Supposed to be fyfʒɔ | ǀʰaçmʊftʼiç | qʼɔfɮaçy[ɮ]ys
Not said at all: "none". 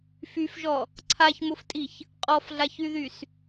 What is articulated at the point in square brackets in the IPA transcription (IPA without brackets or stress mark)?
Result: ð